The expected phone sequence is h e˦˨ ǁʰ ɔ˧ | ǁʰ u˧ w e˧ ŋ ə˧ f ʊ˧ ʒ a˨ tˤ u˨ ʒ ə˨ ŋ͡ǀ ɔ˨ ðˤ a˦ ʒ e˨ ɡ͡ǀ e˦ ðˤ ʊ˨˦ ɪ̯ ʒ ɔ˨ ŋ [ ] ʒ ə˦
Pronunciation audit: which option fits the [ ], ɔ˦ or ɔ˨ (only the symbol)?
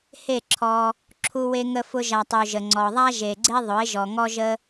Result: ɔ˦